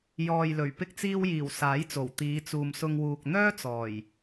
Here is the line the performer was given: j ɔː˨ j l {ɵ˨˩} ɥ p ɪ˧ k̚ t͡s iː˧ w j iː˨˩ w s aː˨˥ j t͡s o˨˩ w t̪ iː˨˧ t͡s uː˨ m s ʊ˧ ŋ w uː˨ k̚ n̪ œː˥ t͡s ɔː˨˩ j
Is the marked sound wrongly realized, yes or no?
no